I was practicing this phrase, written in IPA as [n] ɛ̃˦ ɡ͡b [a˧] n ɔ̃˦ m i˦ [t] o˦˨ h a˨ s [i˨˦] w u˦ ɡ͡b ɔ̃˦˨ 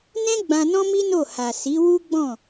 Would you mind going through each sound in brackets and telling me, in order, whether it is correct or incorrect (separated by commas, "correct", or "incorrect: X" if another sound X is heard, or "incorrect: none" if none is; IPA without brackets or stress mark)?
correct, incorrect: ã˧, incorrect: n, correct